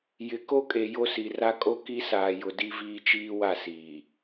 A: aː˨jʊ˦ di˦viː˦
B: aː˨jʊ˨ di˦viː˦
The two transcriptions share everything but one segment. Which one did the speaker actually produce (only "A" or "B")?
B